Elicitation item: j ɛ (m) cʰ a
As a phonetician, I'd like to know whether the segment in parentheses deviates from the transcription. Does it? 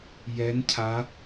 yes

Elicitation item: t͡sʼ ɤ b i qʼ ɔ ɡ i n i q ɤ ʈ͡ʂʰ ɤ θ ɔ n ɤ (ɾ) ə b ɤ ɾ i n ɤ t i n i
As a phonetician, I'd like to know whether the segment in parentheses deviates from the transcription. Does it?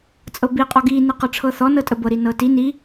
yes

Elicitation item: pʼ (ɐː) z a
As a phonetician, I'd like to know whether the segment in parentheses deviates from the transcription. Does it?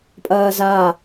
no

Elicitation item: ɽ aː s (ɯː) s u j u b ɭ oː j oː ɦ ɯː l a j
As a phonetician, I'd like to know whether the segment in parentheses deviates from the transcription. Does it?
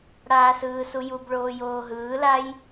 no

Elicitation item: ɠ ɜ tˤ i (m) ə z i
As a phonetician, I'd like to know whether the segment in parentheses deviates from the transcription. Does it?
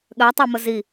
no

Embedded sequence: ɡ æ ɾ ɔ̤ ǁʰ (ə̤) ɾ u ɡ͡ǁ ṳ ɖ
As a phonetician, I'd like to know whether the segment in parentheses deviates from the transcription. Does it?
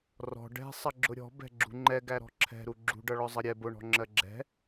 yes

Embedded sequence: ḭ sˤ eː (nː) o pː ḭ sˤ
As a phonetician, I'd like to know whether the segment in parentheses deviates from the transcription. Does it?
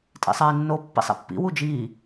no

